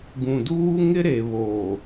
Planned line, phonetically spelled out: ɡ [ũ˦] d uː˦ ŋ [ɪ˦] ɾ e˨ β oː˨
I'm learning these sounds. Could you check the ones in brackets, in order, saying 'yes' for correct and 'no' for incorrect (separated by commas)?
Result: no, yes